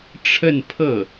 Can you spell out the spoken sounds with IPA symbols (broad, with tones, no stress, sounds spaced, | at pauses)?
ʈ͡ʂʰ ə˥˧ n pʰ ɤ˥˩